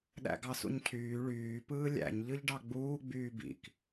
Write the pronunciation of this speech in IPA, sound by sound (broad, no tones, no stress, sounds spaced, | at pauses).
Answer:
ɗ æ̰ ɡ ɑ s ṵ ɲ cʰ yː ɭ yː p ɯː lʲ æ̰ ɲ ʎ ɯ ʎ ɖ ɑ ɡ͡b uː ɡ͡b yː b ḭ k